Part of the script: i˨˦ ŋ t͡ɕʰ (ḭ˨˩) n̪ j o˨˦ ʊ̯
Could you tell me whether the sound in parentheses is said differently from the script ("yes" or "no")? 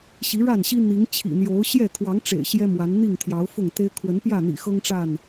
no